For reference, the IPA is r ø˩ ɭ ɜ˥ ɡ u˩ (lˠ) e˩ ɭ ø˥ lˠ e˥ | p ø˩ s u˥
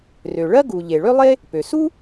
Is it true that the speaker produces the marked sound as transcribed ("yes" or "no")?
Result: no